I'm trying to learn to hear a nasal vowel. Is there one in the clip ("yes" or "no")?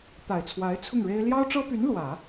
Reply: no